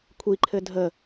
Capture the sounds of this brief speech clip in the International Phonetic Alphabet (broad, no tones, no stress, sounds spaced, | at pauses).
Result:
kʷʰ i ǃʰ ɘ dʱ ə